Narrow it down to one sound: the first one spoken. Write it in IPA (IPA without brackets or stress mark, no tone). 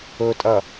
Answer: ɵ